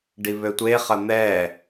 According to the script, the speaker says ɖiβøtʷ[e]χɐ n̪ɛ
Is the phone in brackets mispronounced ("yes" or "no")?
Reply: no